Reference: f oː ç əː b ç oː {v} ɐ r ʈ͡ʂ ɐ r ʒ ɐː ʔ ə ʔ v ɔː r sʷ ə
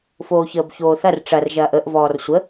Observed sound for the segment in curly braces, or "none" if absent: θ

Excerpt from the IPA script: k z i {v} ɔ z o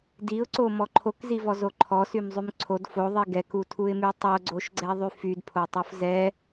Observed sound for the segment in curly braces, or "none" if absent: v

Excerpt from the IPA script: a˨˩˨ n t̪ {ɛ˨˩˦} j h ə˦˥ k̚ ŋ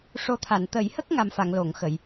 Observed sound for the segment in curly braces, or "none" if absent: ə˨˩˦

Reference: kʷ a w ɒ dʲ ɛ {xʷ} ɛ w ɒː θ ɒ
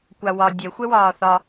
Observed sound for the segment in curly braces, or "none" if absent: xʷ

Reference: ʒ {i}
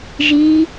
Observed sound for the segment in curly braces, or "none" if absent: i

